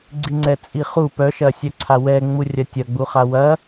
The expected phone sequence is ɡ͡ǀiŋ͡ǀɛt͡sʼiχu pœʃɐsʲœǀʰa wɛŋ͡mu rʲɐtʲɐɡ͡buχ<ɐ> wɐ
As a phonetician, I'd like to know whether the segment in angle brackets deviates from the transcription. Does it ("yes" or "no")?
yes